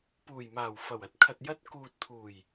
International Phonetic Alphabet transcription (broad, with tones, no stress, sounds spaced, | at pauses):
p uː˨˩ j m aː˨˩ w f ɐ˨˩ w ɐ˨˥ t̚ kʰ ɐ˨ t̚ j ɐ˧ t̚ k uː˨ t̚ t̪ʰ uː˨˩ j